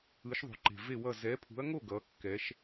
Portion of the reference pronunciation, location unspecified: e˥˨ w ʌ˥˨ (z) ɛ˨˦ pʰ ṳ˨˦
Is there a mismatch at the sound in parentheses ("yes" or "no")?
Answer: no